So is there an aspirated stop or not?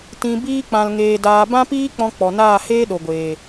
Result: no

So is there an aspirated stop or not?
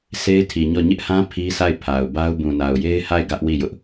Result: yes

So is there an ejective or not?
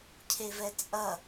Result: yes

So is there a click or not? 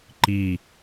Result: yes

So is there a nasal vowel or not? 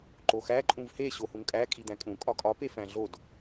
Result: yes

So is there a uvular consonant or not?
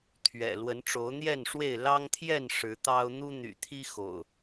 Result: no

